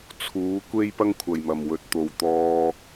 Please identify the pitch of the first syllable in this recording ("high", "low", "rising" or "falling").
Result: rising